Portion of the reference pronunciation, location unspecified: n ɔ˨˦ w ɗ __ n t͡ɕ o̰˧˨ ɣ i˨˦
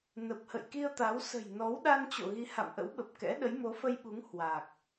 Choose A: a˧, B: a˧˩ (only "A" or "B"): A